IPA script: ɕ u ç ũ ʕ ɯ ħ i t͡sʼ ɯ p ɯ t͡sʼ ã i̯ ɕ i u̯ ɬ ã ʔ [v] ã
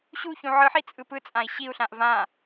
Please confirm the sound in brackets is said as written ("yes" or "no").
yes